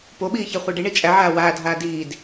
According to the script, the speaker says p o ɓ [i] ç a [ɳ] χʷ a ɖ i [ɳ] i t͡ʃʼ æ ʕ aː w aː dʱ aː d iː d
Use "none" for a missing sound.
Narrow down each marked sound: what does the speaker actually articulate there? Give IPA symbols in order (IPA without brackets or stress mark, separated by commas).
iː, none, ɳ